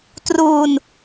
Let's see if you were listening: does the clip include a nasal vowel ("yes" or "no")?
no